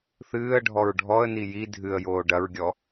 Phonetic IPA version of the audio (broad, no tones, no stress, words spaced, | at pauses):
θɨːə̯ɖʱɔɹ ɖʱɔə̯ni ji dʱɨə̯joː ɖɐɹɡʲɔ